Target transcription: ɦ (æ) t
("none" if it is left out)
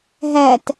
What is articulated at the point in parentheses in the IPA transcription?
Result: æ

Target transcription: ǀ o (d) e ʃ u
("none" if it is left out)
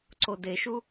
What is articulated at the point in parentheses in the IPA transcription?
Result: d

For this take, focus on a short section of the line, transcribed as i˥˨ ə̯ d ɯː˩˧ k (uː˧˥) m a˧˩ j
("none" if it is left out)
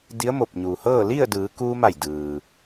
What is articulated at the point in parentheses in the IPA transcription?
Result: uː˧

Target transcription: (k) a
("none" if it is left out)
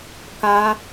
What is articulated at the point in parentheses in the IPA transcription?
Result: k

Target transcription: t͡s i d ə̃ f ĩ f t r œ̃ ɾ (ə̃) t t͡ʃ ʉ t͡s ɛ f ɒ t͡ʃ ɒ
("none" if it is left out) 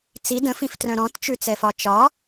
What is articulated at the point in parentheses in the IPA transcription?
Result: ɔ̃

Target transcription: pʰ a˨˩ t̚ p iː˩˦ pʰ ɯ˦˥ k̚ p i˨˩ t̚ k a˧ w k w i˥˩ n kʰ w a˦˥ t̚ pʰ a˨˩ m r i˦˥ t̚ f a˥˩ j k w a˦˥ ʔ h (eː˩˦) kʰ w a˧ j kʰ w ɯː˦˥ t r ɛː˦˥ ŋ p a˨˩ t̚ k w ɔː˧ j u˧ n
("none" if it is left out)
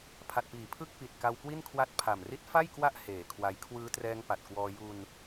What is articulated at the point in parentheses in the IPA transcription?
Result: eː˩˦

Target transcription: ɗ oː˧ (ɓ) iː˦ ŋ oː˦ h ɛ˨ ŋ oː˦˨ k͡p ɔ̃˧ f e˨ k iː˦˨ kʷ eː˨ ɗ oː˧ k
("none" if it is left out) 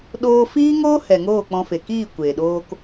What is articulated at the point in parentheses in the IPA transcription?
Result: f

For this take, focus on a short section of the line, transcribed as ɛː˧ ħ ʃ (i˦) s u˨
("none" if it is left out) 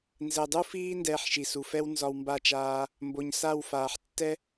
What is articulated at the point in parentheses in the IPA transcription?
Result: i˨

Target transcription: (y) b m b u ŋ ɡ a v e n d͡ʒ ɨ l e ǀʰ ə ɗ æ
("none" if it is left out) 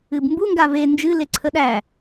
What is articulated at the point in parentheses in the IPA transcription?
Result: ɨ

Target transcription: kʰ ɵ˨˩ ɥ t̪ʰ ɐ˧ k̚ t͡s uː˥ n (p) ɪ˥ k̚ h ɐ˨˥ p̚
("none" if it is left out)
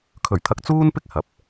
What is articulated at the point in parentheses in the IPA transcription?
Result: p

